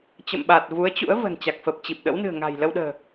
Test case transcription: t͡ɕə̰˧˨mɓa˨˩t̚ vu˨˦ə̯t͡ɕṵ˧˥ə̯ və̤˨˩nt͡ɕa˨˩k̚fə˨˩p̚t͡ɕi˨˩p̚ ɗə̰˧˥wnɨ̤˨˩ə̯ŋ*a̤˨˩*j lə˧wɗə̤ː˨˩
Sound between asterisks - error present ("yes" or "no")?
no